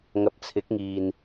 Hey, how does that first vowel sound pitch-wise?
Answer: low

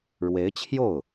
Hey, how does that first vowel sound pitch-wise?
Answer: rising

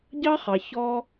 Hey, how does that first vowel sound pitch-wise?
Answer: high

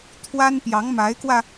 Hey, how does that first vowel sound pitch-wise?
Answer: high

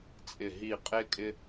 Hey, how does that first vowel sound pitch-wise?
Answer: low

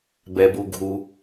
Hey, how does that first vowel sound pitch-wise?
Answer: low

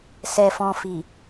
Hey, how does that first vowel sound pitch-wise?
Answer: low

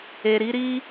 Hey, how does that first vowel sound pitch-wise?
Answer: low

